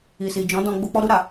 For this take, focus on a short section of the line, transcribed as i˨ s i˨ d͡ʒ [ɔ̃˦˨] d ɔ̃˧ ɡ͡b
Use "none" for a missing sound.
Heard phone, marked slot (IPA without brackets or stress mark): ɔ̃˨˦